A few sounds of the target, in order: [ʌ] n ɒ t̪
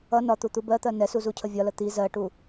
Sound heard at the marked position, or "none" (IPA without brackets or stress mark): ʌ